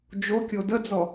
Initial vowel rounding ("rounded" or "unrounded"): rounded